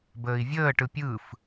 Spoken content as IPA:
b əː i̯ vʲ əː ʈ ɯ pʲ ɯ f

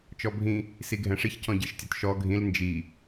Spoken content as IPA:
t͡ʃ ɔ bʱ ĩ | s i ɡʱ ɛ̃ ʂ i ç c ɔ̃ ɟ i ʃ tʲ ɔ t ʃ ɔ ɡʱ ĩ l n d͡ʒ i

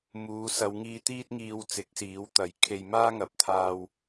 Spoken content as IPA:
m uː˨˧ s ɐ˨˧ w ŋ iː˧ t̪ iː˥ t̚ ŋ iː˧ w t͡s ɪ˨˥ k̚ s iː˨˥ w t̪ ɐ˨˥ j kʰ e˧ j m aː˥ ŋ ɐ˨˥ p̚ t̪ʰ aː˧ w

